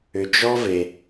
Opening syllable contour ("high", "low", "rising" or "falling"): low